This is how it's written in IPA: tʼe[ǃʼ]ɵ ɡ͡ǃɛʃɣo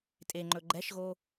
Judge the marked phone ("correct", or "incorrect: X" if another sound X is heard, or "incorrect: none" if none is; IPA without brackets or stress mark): incorrect: ŋ͡ǃ